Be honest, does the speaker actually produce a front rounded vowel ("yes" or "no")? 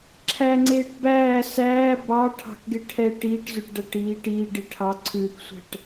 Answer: no